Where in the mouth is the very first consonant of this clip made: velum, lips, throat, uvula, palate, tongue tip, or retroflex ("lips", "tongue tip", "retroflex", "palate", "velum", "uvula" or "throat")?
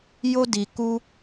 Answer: palate